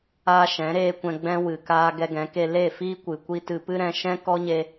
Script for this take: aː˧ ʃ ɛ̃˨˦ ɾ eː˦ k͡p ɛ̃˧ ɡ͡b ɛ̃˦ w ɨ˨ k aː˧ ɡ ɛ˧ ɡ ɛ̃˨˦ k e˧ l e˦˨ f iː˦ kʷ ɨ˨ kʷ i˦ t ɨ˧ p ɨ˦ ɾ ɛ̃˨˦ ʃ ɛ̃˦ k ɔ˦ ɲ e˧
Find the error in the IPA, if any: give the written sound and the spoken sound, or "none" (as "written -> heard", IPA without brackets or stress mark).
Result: k͡p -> kʷ